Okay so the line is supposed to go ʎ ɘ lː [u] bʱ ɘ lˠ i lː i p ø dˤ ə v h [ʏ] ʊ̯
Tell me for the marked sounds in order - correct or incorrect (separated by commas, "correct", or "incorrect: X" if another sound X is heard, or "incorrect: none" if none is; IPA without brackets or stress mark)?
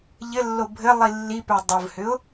incorrect: o, correct